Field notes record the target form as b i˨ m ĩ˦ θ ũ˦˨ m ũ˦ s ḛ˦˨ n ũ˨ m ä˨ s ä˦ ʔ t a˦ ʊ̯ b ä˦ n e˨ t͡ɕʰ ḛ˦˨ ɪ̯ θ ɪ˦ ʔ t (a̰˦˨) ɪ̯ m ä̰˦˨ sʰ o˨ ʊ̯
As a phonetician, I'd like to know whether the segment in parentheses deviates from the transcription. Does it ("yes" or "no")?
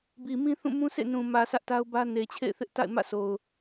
no